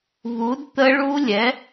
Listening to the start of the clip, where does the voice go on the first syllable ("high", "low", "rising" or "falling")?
rising